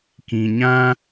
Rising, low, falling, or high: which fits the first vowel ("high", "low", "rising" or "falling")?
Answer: low